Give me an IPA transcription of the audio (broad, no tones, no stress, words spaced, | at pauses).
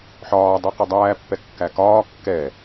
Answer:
ħɒːdˤɛ qədˤæːpːɛ kːækɒː kːɛ